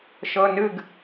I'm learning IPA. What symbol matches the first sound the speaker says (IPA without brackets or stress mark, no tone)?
ʃ